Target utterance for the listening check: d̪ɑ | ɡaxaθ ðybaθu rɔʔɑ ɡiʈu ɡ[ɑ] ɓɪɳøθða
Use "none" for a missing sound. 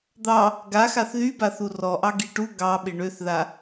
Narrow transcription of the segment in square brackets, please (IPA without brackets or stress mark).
ɑ